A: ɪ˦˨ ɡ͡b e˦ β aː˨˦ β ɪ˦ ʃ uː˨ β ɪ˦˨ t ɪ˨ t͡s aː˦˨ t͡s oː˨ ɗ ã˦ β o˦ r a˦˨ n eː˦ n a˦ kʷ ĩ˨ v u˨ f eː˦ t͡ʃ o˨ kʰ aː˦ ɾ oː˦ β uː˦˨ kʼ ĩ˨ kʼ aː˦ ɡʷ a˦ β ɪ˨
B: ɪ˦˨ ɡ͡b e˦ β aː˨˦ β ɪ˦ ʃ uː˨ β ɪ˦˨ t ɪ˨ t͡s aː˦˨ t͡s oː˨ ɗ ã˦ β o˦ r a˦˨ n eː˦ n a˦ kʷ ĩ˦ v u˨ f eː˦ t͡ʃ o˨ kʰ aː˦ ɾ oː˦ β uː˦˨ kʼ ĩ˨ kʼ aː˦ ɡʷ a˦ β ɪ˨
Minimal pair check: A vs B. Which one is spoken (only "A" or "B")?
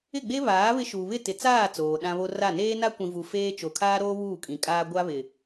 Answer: A